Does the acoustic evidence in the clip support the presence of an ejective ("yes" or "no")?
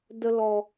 no